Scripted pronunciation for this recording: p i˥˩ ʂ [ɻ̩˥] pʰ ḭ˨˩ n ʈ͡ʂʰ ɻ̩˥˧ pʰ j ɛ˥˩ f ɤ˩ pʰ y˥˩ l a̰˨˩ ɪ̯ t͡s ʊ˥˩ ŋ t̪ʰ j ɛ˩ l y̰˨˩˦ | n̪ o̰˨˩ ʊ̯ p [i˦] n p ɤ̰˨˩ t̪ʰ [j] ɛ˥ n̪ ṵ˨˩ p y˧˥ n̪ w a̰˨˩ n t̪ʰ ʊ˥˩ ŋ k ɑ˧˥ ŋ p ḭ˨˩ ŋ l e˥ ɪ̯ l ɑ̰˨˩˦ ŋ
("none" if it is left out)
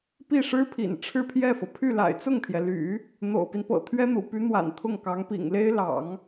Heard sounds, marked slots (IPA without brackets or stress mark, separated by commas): ɻ̩˥, i˦, ɥ